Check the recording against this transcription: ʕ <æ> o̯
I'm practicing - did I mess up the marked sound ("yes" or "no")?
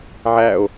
no